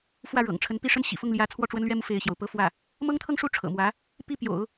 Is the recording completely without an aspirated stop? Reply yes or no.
no